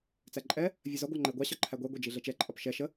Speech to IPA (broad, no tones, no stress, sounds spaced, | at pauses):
t͡s æ ǃʼ ɛ | vʲ ɜ z ɒ ɡʷ ɑ ŋ͡ǃ ə ɪ̯ ɡʷ ɑ ɕ ɒ ǃʰ æ ɡʷ ɛ ɡʷ ɛ d͡ʒ i ɮ ɛ t͡ʃ ɛ ǃʼ ɒ p ʃ ɛ ʃ ə